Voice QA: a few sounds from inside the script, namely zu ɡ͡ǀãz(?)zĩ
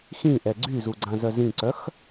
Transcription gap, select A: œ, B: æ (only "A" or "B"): A